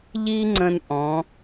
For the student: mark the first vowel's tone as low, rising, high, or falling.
high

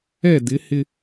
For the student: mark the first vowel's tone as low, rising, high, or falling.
falling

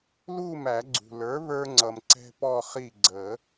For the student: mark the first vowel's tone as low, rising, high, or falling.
falling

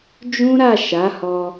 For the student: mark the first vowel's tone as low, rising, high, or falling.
high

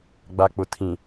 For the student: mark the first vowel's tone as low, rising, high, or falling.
low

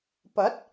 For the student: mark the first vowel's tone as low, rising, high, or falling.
rising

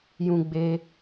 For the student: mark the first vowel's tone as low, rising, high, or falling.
low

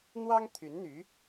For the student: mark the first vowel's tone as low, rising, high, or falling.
high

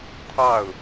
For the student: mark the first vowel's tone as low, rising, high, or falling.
falling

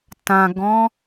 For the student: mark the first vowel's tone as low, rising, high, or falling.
low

